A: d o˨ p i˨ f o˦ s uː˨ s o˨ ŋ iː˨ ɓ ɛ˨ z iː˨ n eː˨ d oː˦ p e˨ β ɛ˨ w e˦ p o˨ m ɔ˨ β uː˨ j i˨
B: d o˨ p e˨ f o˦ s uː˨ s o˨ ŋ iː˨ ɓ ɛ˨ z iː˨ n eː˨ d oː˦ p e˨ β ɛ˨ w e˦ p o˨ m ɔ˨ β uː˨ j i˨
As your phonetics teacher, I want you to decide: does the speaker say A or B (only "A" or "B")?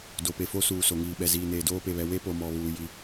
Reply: B